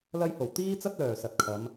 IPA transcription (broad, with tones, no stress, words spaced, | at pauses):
lɐ˧jho˨˩w t̪iː˥t͡sɐ˥t̚lœː˨˩ sɐ˨t̚kʰɐ˨˧m